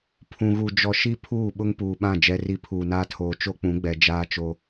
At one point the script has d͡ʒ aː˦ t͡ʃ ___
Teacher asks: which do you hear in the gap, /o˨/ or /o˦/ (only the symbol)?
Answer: o˦